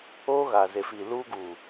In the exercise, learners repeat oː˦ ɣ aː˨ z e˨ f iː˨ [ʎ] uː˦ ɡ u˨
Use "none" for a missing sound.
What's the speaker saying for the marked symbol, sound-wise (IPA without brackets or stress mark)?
l